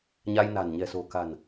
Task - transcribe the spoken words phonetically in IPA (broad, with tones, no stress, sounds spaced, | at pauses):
ɲ a˧ j n a̤˨˩ n ɲ ɛ̤˨˩ s o̤˨˩ k a̤˨˩ n